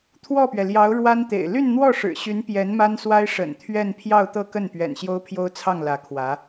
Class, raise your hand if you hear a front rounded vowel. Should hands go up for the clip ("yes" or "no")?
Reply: yes